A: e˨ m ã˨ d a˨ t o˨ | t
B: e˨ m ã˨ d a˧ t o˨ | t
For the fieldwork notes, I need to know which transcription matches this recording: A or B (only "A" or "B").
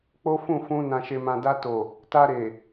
B